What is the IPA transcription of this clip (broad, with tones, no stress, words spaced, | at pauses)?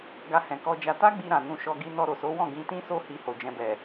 ɡa˧hɛ̃˨kɔ˧d͡ʒa˧ ta˦ɡ͡bi˧ɾã˨ nũ˧ʃɔ˧ɡi˧ nɔ˧ ɾo˨so˨˦wɔ̃˦˨ ɡĩ˧tĩ˦so˦ hi˧ho˨d͡ʒɛ̃˧bɛ˨